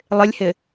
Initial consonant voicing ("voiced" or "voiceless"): voiced